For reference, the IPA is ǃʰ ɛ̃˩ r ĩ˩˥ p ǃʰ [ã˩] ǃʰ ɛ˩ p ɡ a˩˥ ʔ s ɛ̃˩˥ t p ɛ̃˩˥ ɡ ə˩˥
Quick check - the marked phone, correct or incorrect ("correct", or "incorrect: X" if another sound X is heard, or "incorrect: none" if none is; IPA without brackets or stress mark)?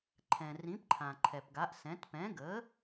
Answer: correct